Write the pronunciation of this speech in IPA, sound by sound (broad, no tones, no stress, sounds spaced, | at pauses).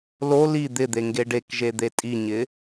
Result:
l o l i d̪ ɪ d̪ e ŋ ɡ e ɖ e k ʒ e d̪ e tʼ i ɲ ɪ